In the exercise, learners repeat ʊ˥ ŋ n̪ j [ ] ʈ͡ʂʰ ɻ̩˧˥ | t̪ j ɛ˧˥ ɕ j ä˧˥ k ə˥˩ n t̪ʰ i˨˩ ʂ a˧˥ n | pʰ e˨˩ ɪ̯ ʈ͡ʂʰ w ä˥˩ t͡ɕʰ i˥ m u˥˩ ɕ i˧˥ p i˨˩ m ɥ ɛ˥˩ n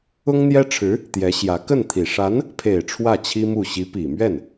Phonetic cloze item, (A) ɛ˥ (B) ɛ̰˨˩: A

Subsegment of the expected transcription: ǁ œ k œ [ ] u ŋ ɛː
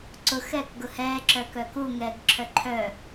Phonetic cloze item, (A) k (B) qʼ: A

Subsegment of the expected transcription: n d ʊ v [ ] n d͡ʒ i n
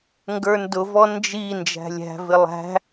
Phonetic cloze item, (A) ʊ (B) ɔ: B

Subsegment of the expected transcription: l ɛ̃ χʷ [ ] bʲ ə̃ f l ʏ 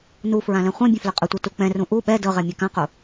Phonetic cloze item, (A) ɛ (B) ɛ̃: B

